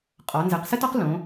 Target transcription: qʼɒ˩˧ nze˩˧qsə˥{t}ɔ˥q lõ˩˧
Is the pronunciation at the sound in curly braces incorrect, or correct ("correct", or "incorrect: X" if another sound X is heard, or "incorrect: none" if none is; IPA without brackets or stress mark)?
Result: correct